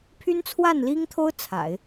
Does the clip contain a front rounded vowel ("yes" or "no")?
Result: yes